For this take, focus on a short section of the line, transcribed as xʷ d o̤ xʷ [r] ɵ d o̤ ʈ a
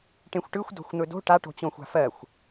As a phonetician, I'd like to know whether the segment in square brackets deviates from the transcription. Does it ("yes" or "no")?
yes